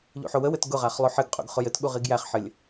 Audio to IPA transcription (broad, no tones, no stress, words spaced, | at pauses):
ʎṵħowəwɘt ɡʊʁaχ lˠoħɘɡqʼṵɡ χʊjɘtɠu ʁiɡjæχħɘlʲ